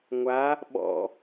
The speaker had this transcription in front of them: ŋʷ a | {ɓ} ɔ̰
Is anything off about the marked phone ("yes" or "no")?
no